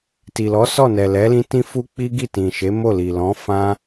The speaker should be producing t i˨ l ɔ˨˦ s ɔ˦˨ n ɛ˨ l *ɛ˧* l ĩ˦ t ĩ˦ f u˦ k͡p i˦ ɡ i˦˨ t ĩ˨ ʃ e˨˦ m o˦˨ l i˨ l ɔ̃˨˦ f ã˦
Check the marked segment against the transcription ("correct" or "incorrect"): incorrect